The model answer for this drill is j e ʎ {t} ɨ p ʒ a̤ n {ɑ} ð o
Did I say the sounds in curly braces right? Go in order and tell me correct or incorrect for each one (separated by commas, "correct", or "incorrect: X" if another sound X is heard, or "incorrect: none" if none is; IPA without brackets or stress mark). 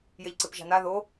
incorrect: ǀ, incorrect: a